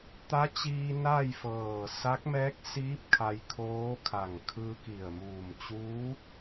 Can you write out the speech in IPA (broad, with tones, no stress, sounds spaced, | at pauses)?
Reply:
t̪ a˧˥ t͡ɕ iː˧ n a˥˨ j f ɤː˧˩ s a˧˥ k̚ m ɛː˧˥ k̚ s iː˧˥ p̚ kʰ a˧ j kʰ oː˧˥ kʰ a˧˩ ŋ kʰ ɯː˧ k i˧˩ ə̯ m uː˧˩ m t͡ɕ uː˧˥